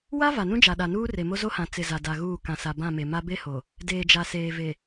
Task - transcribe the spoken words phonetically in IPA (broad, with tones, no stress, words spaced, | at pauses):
wa˦ va˨nũ˦d͡ʒa˨ɗa˨ nuː˦re˨ mo˦zo˦hã˨ t͡sɪ˨ za˨da˨ɣuː˦˨ kã˨sa˨ bã˦˨me˨ma˦ be˦ho˨ | deː˨d͡ʒa˨seː˨ ve˨